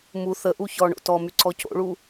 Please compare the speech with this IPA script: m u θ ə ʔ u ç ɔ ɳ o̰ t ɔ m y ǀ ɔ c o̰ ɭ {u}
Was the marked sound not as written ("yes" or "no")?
no